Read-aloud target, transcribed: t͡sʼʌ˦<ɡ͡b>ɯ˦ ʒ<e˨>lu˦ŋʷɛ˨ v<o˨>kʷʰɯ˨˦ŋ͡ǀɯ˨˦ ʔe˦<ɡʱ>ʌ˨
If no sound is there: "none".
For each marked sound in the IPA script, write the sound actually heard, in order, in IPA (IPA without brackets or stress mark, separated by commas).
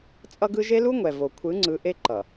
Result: ɡ, e˦, o˨, ǃ